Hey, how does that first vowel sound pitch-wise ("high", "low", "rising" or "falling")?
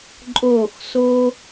falling